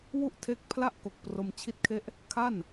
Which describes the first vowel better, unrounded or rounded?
rounded